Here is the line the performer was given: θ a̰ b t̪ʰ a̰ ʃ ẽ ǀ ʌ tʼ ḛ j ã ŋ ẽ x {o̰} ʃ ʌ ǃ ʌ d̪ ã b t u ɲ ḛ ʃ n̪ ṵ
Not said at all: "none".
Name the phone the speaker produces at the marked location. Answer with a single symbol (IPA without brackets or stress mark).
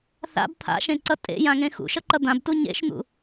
ṵ